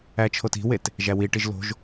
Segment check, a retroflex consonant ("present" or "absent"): present